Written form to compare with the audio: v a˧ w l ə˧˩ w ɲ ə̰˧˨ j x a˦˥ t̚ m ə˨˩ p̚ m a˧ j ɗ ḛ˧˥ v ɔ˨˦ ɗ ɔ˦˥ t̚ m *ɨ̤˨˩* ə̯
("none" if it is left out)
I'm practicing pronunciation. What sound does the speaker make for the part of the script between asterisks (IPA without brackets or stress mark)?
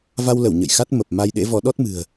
ɨ̤˨˩